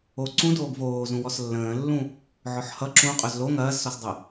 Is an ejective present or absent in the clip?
present